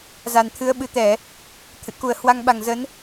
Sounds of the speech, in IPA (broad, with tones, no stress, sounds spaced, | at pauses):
z a˨˩ n t̪ʰ ɨ˨˦ ə̯ ɓ ɨ˨˩ t̪ ɛ˧˩˨ | t̪ʰ ɨ̰˧˨ k u˨˩ ə̯ h w a˧ ŋ ɓ a˨˩ ŋ z ə˨˦ n